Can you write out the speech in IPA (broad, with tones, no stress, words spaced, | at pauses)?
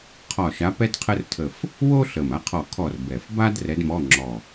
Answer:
qʰɒ˦˨ʃa˧˥ pɛ˥d qʰə˥rtʰə˦˨f | wo˥ɬə˨˩m a˧˥qʰɔ˦˨kʰɔ˦˨r bɛ˨˩fba˥d rɛ˧˥dmɔ˧˥˧ ŋ͡ǁɔ˦˨